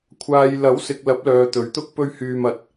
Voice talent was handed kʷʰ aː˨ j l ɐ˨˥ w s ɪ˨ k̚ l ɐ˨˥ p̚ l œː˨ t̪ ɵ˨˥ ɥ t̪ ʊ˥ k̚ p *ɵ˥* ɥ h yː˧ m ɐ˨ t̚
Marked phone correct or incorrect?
correct